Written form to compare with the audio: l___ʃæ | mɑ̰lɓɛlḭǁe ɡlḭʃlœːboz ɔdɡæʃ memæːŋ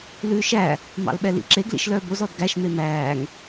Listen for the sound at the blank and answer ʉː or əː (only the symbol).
ʉː